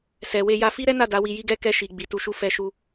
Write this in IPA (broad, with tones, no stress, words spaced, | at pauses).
sɛ˨we˧ja˧ fi˦ɾɛ˦na˦˨ da˨˦wi˧ji˦ɡɛ˦˨ kɛ˧ʃi˨ ɡ͡bi˨˦tu˧ʃu˦ fɛ˧ʃu˧